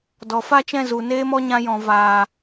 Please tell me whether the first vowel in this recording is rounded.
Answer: yes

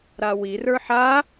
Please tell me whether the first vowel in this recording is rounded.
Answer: no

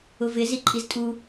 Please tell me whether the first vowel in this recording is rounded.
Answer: yes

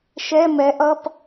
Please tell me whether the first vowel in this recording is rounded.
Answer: no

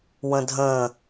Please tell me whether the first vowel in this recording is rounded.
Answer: no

